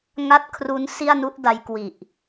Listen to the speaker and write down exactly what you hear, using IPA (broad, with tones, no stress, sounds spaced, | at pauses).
ŋ a˥˩ t̚ kʰ r u˦˥ n s i˥˩ a̯ n u˦˥ ʔ d a˦˥ j k w i˨˩ ʔ